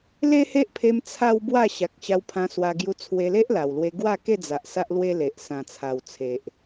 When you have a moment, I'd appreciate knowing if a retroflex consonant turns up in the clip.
no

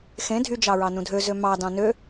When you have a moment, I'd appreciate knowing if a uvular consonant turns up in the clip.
no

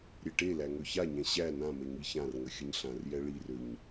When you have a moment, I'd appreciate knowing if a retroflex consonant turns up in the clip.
yes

